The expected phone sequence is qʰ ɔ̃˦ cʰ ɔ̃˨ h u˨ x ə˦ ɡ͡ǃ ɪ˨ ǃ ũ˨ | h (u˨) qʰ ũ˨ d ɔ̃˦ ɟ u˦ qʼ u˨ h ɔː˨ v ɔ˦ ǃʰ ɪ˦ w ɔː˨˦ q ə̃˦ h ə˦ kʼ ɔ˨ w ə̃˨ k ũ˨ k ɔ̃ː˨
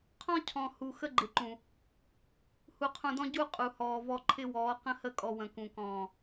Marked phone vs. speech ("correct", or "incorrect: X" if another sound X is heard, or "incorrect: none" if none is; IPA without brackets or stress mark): correct